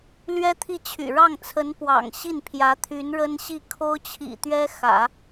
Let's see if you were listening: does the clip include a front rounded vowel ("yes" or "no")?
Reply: yes